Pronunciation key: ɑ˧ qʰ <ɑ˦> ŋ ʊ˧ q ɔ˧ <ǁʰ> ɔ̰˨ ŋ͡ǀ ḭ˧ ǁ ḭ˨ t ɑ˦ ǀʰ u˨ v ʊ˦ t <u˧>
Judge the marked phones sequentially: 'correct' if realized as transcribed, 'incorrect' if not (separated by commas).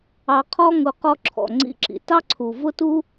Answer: incorrect, correct, incorrect